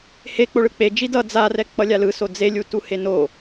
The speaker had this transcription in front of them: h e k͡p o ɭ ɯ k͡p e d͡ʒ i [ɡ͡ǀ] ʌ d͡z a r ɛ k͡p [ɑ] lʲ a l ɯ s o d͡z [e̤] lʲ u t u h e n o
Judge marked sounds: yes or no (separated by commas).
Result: no, no, no